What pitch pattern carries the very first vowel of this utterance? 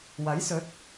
rising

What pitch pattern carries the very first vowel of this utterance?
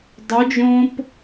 rising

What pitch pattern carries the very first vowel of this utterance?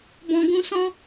low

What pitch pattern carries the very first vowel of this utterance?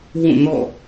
falling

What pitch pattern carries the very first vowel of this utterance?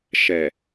low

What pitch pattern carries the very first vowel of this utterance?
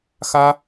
high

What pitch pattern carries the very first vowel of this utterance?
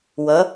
rising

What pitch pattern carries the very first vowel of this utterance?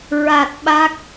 low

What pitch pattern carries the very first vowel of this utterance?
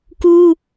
high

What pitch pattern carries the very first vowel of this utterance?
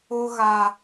high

